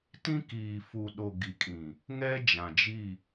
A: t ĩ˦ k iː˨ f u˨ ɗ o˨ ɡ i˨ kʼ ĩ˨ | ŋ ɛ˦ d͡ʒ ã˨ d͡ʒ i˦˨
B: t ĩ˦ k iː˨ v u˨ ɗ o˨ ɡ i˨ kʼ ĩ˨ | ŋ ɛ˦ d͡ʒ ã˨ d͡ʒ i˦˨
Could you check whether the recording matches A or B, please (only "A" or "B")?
A